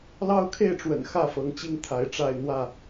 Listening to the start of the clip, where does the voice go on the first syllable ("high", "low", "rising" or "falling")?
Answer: high